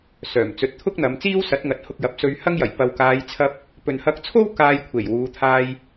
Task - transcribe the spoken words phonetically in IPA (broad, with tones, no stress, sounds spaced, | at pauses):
s œː˨˩ m t͡s ɵ˨˥ t̚ t̪ʰ ʊ˥ k̚ n̪ ɐ˨˧ m t͡s iː˥ w s ɐ˨˥ t̚ ŋ ɐ˨ t̚ h ʊ˧ k̚ j ɐ˨ p̚ s ɵ˧ ɥ h ɐ˥ ŋ j ɐ˨˩ j p ɐ˨ w k aː˨˧ j t͡sʰ ɐ˧ p̚ | p ɵ˨ n h ɐ˧ k̚ t͡sʰ o˥ w k aː˧ j kʷʰ e˨˩ j w uː˨˧ t̪ʰ aː˧ j